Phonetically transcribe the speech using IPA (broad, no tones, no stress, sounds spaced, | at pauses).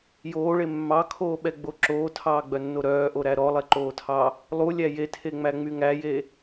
j oː ɭ e mː ɑ kʰ oː ɓ ɛ ɡ͡b o ǁ oː tʰ ɑː ɡ͡b œ nː o ɾ œː ʔ o ɾ æ ɾ ɔ lˠ ɛ ǃ oː tʰ ɑ | lˠ u lʲ æ j e tʰ e ŋ͡m æ ŋ͡m y ŋ æ j e